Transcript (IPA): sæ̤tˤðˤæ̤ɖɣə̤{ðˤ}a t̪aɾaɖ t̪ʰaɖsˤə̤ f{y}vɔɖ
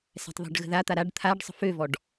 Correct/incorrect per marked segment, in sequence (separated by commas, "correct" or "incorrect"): incorrect, incorrect